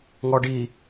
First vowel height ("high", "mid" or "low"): mid